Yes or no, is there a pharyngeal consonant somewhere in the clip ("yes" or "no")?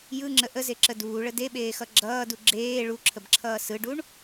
no